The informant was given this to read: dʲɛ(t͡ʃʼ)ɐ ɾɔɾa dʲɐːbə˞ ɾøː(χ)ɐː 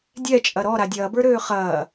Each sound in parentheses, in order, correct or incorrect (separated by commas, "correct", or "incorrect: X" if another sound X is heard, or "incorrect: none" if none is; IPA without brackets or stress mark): correct, correct